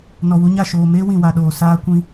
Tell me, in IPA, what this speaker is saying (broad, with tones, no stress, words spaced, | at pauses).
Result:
nɔ˨wu˧ɲa˦˨ʃoː˨ meː˦ wĩ˨wa˨ɗoː˨ saː˦kʷĩ˦